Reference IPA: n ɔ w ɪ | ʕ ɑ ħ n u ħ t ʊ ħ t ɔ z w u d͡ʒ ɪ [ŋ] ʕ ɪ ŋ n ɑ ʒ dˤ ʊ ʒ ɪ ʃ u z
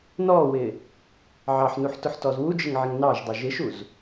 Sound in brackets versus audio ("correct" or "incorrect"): correct